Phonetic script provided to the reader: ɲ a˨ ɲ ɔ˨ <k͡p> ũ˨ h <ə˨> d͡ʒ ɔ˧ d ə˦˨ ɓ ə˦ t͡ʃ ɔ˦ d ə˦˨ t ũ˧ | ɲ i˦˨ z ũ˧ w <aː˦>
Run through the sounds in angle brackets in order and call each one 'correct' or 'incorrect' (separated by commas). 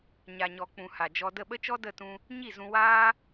correct, incorrect, correct